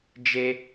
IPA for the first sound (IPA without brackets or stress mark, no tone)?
d͡ʒ